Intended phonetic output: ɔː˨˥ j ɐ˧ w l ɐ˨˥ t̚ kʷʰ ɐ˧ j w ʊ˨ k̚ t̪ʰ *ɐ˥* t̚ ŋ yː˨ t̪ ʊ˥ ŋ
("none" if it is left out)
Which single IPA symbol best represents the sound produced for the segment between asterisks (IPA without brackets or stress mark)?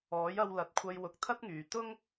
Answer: ɐ˥